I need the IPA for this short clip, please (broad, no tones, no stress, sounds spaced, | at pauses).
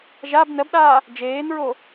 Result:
ʒ a b n ɜ b ɗ aː | d͡ʒ eː n ɹ o